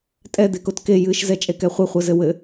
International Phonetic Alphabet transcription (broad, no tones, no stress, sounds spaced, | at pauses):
tʼ ɛ d̪ e k o t k e j ɨ ʃ z ɛ t͡ʃʼ e k ɛ χʷ e χʷ ɘ z ɘ w ɘ